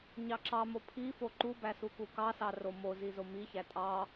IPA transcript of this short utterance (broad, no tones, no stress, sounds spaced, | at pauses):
ɲ ɑ ǁ ɑ m o pʰ i f o ǃ u b æ s u k u k ɑ s ɑ r o m o z i z o m i ç æ tʼ ɑ